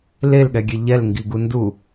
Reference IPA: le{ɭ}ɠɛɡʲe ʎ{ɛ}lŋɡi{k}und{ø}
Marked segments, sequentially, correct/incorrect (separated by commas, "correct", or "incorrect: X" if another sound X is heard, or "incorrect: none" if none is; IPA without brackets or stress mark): incorrect: l, correct, incorrect: ɡ, incorrect: u